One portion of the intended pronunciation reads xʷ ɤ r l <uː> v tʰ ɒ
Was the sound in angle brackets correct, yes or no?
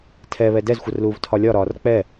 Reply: yes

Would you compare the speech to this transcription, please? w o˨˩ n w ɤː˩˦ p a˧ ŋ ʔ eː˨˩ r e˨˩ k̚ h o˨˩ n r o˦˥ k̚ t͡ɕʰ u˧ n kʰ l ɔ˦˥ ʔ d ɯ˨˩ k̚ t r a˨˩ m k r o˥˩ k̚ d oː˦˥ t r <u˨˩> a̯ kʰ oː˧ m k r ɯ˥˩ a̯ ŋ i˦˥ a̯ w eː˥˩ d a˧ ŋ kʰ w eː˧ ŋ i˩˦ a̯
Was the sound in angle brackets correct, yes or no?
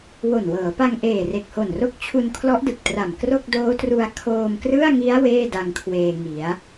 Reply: no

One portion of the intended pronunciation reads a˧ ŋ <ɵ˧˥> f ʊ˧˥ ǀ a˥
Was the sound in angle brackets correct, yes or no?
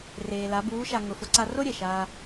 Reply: no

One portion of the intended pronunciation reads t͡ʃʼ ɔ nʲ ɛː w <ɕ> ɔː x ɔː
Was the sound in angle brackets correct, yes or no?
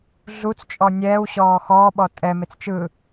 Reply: yes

